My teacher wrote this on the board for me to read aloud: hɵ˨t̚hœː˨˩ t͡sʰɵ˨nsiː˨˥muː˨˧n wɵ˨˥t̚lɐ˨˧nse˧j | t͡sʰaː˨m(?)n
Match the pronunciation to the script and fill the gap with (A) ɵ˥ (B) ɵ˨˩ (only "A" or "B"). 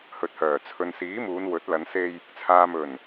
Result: B